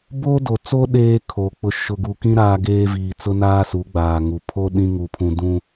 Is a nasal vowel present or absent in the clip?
present